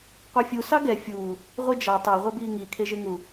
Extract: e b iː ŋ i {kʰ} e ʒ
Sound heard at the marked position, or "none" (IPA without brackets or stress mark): kʰ